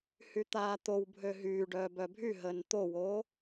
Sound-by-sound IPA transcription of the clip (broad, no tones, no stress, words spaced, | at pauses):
hyt̪aːt̪ow bʱøɦyːɖœː bœbʱyɦəːn t̪owo